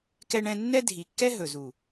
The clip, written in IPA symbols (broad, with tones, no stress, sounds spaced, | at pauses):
k ɛ˦ ɳ ɛ̃˦ nː ɛ˦ dʱ i˨ kː ɛ˦ ɦ ɵ˨ z u˨